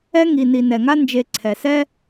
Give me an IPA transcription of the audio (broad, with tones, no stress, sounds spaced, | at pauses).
ɛ˦ ŋ i˨ n i˨ n ɛ˩ ŋ a˥ n d͡ʒ e˨ ǀʰ ɛ˩ s ɛ˥